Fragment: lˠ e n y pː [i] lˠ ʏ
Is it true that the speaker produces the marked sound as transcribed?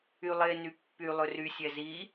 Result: no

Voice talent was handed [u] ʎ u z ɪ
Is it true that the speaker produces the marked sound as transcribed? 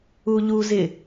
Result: yes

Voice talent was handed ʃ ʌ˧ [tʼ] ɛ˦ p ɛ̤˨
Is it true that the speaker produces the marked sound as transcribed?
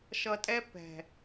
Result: yes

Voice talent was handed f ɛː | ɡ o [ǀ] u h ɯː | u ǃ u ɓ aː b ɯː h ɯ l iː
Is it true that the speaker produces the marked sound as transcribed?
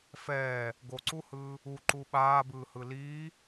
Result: yes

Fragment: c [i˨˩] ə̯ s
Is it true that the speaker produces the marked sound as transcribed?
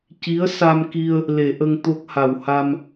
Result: no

